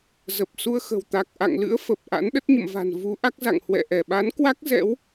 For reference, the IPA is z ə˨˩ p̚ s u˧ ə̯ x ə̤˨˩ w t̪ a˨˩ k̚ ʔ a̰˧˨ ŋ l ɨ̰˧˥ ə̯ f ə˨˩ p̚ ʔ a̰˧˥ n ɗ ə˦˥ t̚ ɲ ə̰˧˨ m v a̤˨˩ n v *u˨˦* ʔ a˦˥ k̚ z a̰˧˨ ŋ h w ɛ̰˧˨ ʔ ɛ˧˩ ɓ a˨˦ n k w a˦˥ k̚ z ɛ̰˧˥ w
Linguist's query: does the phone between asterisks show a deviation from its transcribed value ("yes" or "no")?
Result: no